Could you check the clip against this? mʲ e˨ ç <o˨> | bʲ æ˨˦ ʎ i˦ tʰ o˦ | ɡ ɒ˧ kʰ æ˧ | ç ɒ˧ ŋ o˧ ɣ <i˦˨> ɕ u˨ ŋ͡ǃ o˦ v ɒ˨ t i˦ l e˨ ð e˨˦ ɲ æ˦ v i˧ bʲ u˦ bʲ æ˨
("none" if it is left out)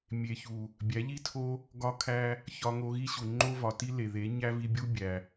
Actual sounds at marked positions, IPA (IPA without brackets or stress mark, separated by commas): u˨, i˦